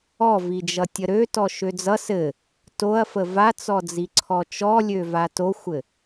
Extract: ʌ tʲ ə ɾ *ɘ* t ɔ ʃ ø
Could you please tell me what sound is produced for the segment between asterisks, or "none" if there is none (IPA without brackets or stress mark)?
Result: ø